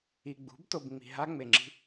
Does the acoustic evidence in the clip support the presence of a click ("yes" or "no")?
yes